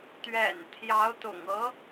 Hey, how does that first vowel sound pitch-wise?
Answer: low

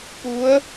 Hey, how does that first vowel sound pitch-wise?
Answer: rising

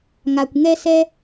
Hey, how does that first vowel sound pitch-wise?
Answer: low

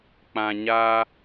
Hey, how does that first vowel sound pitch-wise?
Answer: low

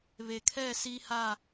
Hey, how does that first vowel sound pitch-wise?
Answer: low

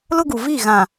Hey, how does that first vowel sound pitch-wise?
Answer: high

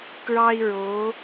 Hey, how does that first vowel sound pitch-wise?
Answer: high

